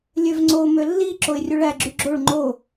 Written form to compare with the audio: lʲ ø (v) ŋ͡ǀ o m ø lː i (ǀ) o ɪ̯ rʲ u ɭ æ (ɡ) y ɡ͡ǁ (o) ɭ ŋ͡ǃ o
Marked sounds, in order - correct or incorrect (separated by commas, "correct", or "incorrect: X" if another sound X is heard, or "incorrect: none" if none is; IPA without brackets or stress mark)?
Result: correct, incorrect: ǁ, incorrect: ɡ͡ǁ, correct